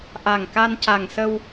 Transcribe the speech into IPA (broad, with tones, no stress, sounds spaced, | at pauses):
ʔ a˨˩ ŋ k a˧ n c a˨˩ ŋ s ə˧ w